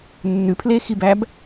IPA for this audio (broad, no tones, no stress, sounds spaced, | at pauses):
nː ʉ pʰ l e x i b æ b